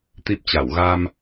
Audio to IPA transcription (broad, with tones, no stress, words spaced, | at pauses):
t̪i˦˥p̚t͡ɕa˧˩w ɣa˧m